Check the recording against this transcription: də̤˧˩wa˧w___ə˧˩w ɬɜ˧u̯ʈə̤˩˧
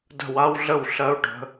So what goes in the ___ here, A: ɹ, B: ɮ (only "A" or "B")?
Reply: B